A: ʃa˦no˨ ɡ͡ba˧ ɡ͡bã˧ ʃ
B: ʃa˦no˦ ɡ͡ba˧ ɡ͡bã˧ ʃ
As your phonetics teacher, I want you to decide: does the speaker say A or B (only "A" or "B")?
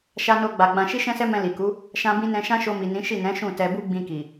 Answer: B